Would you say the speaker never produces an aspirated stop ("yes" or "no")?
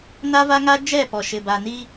yes